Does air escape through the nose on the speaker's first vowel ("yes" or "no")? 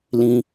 yes